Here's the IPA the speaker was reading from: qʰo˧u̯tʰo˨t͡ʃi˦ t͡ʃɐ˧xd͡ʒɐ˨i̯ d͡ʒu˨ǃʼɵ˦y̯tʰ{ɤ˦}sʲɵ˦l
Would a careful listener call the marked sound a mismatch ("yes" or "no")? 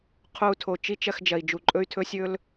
yes